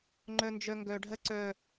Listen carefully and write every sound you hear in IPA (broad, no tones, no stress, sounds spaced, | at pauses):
ŋ͡ǃ œ n d͡ʒ œ ŋ ɡ œ ɖʱ ɜ ǀ œ